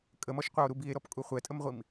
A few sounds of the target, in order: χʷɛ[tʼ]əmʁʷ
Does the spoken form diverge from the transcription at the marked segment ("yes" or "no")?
no